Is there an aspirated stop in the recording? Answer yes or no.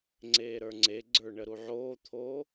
yes